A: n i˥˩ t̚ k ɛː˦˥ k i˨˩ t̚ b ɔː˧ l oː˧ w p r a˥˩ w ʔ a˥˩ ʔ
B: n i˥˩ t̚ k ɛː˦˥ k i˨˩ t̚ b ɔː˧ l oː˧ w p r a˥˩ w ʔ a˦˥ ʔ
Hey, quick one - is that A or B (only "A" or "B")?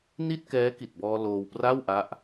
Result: B